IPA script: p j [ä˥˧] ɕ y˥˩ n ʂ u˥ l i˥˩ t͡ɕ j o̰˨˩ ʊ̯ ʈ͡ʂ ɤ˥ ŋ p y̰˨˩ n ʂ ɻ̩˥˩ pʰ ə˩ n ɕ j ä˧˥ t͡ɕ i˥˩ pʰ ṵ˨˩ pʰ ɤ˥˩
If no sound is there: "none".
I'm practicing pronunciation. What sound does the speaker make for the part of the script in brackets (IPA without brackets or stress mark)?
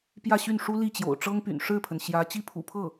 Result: ä˥˧